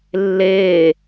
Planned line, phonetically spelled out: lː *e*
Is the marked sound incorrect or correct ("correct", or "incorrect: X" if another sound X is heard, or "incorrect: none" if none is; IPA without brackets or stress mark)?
incorrect: eː